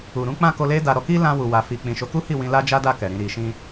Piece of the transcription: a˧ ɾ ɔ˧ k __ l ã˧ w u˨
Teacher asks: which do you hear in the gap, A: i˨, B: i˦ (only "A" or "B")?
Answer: B